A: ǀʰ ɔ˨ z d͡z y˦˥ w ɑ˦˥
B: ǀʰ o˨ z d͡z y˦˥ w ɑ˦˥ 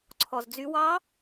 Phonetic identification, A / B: A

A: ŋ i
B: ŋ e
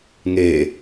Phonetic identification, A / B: B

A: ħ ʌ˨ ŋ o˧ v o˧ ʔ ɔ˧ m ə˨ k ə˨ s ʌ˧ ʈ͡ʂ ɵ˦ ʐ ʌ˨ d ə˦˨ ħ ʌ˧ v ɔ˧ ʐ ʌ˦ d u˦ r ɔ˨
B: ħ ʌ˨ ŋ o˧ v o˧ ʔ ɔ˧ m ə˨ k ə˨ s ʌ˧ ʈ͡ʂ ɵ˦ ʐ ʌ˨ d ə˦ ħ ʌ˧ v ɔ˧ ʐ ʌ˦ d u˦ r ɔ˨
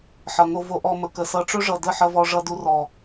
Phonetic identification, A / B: A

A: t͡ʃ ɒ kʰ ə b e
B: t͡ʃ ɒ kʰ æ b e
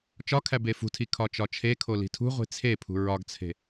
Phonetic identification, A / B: B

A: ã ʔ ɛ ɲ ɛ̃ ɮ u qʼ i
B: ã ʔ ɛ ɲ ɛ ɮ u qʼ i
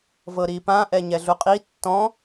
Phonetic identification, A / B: B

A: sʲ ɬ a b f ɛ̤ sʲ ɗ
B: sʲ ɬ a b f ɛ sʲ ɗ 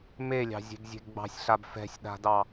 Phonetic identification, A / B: A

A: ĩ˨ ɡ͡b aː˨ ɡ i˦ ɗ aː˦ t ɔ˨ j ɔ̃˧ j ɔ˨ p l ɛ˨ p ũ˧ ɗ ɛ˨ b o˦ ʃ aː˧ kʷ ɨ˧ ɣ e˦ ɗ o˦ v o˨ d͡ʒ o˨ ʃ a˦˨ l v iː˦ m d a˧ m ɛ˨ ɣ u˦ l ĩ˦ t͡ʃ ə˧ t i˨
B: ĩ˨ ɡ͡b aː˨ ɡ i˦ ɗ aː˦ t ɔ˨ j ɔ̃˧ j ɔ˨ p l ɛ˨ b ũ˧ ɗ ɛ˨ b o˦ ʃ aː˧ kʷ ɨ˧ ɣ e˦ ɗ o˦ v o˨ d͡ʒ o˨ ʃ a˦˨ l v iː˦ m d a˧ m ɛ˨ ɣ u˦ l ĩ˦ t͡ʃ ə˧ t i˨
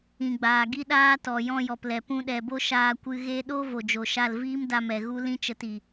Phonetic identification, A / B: A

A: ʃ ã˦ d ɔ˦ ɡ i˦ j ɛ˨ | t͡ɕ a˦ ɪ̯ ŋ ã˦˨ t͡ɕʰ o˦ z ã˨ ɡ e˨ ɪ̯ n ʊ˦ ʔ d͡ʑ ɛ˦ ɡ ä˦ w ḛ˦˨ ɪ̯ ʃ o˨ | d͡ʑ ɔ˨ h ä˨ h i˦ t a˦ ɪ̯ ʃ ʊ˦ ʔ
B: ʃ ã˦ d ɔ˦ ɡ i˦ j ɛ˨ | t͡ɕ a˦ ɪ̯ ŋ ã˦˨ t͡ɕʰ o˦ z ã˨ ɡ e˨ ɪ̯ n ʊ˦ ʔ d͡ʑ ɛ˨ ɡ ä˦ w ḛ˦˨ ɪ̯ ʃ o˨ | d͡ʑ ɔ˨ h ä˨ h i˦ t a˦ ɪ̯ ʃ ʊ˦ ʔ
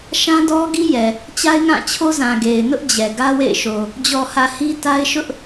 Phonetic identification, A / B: B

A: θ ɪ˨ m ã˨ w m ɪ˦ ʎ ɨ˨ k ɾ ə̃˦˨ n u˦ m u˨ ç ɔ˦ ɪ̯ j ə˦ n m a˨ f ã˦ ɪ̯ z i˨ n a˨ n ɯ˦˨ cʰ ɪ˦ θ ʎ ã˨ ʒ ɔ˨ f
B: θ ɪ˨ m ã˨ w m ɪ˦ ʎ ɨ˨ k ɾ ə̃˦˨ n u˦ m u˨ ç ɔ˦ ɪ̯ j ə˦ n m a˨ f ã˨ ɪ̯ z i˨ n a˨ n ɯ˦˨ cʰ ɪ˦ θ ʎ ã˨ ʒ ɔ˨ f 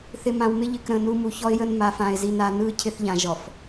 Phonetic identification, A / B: B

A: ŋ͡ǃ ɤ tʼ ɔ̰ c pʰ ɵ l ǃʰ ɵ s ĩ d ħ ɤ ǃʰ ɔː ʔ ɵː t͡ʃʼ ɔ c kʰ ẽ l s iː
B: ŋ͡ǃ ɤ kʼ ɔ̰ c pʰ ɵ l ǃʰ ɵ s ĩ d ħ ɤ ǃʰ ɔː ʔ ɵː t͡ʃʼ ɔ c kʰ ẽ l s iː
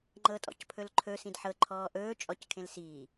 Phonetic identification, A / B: A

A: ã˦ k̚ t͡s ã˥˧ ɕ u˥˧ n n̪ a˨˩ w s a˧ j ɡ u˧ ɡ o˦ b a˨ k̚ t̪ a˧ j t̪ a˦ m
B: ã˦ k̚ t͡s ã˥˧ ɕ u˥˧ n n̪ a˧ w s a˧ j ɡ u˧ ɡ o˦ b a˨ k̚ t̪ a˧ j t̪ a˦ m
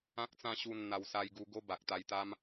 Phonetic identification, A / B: B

